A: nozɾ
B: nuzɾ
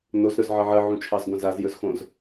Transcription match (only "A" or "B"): A